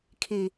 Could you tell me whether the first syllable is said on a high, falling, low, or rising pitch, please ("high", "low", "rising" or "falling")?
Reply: low